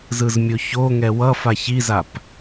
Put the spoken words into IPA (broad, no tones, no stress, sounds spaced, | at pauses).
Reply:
z ɯ z mʲ o ç o ŋ ɛ w ʌ f a ç i z a p